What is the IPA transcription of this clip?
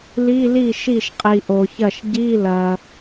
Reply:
l i˧˥˧ l i˥˩ ʃ i˥˩ ʃ qʼ i˨ ʔ o˨ ç ɐ˥˩ ʃ ɟ i˧˥˧ l ɐ˨

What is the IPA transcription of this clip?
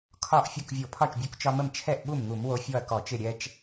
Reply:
kʰ ɒ˥˩ ʔ fʲ o˥˩ k vʲ o˧˩˧ pʰ ɒ˥˩ t͡ʃ bʲ u˧ k t͡ʃ ɒ˧ m ə˥˩ m t͡ʃʰ ɛ˥˩ ʔ ɓ u˥˩ m ŋ u˧˩˧ m w o˧ fʲ ɔ˥˩ ɐ̯ k ɔ˧˩˧ t͡ʃ ɪ˥˩ ɾʲ ɛ˧ t͡ʃ

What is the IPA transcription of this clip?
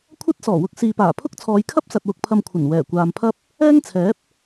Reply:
kʷʰ ɐ˥ t̚ s ɔː˨˩ w ʊ˧ k̚ s iː˨ p aː˨˩ pʰ ʊ˥ k̚ t͡sʰ ɔː˨˧ j kʰ ɐ˥ p̚ s ɐ˨ t̚ w ʊ˨ k̚ pʰ ɐ˨ m kʷʰ ɐ˨˩ n w ɛː˨˩ kʷ aː˨ m pʰ ɐ˥ p̚ | ɛː˥ ŋ t͡sʰ ɛː˨˥ p̚

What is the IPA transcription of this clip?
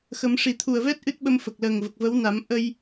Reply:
x ə˨˩˦ m ʂ i˨˩ t̪ʰ u˨˩ ə̯ v ɛ˦˥ t̚ ʔ ɨ˦˥ t̚ ɓ ə˧ m f ə˨˩ k̚ l əː˨˩ ŋ v ə˨˩ k̚ v ə˧˥ w n a˨˩˦ m ʔ ə˧ j

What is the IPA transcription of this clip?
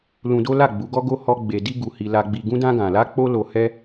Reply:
l ũ˧ d o˦ l a˦˨ ɡ͡b u˨˦ ɡ ɔ˦ ɡ o˦ h ɔ˧ ɡ͡b e˧ d i˦ ɡ u˧ h i˧ l a˧ ɡ͡b i˧ ɡ ũ˦ d ã˦ ɡ ã˧ l a˦ k͡p o˦ l o˧ h ɛ˦

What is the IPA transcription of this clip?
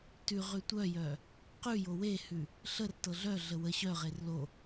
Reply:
t ʉ ʁ ʉ tʷ œ j œ | q ʉ j o w e h ʉ | ɬ ə r t ɤ ɮ œ ɮ ə w ə ɕ œ ʁ e r l o

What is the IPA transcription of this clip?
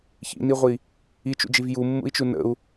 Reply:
ç ḭ n i ʁʷ i | i t͡ʃ ṵ d͡ʒ i v j u mː ṵ i̯ t͡ʃ u n ə̰ u̯

